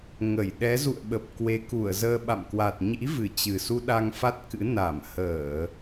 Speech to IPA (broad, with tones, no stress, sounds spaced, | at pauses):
ŋ ə˧˩ j ɗ ɛ˨˦ z ṵ˧˨ ə̯ ɓ ə˨˩ p̚ k w e˨˦ k u˧˩ ə̯ z əː˧ ɓ a̰˧˨ m k w a˨˩ t̚ ɲ ḭ˧˥ v ɨ˨˩ t͡ɕ ɨ˨˩ s u˧ ɗ a˧ ŋ f a˦˥ t̚ k ɨ̰˧˥ n a˧˩ m h əː˧˩˨